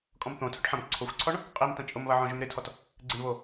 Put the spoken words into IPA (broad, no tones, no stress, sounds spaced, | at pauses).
kʼ ɔ̃ m θ õ tʰ ʊ ʈ ħ ɐ̃ m ǀʰ o xʷ ǀʰ ɔ ɳ | qʼ i m t ɐ̃ t͡ʃʼ ʊ m β ɐ ʕ ɔ̃ ʒ ʏ m ɾ ɪ tʰ ɔ t | ɡ͡ǀ ɪ ɳ β o